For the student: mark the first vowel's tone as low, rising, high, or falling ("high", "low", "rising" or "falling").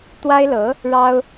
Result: high